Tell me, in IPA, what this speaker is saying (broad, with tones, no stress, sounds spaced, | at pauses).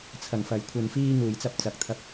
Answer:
t͡sʰ ɐ˨˩ ŋ f ɐ˨˩ j kʷʰ ɐ˧ n f iː˥ ŋ uː˨˩ j t͡s ɐ˧ p̚ t͡s ɐ˨ k̚ t̪ʰ ɐ˧ p̚